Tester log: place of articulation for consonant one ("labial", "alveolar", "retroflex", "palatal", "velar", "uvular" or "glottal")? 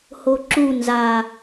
glottal